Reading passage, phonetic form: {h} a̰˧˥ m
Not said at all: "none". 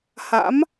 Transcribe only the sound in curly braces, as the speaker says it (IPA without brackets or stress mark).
h